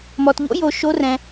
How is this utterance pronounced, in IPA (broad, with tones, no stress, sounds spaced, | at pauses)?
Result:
m ɔ˧ t ʎ o̰˦˥ j o˧ ʃ o˦˥ r ɛ̃˧